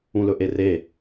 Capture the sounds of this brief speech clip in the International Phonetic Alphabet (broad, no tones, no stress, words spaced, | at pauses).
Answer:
ũlɵʔere